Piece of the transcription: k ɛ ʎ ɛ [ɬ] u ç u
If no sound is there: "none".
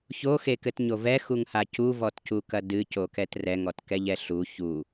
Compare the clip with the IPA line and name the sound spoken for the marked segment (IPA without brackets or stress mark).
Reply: ɬ